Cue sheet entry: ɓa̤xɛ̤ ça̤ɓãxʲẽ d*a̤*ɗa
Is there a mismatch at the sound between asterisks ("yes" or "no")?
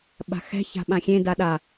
yes